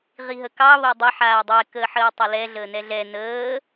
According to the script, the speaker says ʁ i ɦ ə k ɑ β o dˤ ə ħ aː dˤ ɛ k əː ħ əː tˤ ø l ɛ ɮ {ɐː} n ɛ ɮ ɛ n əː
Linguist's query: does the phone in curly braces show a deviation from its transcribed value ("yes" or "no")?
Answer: yes